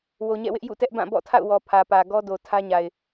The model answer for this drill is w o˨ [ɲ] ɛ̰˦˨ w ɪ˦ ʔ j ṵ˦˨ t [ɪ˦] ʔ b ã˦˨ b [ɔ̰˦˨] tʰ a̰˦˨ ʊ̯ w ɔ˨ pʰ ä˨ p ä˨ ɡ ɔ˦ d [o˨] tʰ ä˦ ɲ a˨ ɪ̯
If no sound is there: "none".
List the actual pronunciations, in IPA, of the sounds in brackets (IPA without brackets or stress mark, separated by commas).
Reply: ɲ, ɛ˦, ɔ̰˦˨, o˨